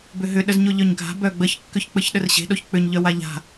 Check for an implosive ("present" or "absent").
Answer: present